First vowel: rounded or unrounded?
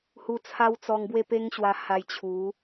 rounded